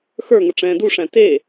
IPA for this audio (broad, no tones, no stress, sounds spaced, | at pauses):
x ə˞ ŋ ə ʈ͡ʂ ɛ̃ː d u ʂ æ̃ t e